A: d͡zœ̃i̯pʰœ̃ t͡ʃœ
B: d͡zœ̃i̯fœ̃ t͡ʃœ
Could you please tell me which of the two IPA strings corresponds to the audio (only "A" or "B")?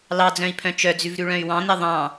A